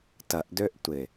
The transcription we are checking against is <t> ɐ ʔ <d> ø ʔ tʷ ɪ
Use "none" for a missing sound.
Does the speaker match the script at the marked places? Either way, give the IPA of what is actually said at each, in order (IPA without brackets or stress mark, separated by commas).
t, d